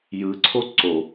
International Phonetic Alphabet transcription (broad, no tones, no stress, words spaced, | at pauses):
jɯǀʰo ǀo